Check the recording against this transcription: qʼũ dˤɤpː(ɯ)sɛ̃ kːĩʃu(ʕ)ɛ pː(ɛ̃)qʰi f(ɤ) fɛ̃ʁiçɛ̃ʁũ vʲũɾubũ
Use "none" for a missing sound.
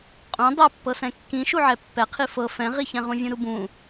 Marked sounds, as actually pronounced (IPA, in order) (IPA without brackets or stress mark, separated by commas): ɤ, ʕ, ɛ, ɤ